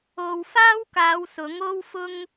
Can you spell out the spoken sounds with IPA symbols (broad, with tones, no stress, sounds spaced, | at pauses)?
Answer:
o˧ w f aː˥ w k aː˨˧ w s ʊ˨˥ ŋ o˥ w f ʊ˥ ŋ